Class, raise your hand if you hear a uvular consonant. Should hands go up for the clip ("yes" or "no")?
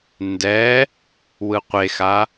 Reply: yes